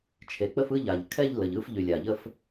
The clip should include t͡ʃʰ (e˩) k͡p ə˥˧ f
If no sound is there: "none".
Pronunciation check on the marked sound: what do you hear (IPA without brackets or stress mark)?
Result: e˩